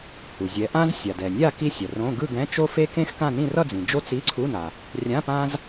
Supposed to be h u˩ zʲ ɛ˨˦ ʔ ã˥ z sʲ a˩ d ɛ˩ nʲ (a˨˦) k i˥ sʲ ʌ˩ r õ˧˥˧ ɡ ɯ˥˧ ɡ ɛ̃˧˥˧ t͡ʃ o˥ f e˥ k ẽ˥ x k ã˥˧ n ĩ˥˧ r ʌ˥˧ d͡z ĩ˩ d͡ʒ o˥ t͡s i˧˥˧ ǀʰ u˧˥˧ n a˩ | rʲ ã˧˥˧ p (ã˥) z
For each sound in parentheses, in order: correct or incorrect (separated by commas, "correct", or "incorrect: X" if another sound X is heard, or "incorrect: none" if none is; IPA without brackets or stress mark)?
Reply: incorrect: a˥˧, correct